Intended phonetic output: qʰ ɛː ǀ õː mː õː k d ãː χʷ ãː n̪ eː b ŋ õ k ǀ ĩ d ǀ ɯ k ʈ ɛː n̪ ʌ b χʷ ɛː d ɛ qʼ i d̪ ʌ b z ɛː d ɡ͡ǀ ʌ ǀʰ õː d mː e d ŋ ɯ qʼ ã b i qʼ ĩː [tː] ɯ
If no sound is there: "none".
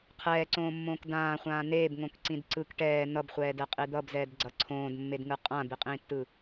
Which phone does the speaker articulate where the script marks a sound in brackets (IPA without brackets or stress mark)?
tː